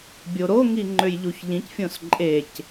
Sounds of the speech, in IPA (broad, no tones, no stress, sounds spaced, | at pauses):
bʲ o ɾ o ŋ i ŋ͡ǃ ø j ʎ u ç ʎ ĩ c fʲ õ s ǃʼ e c